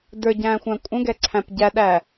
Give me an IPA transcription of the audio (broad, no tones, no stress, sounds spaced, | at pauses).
d ə˞ ɟ æ̃ː xʷ æ̃ kʷʼ ə̃ ɡ ɛ ǀʰ æ̃ p ɟ æ ɗ æ